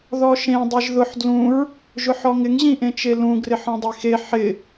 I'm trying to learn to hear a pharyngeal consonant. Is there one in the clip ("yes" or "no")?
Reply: yes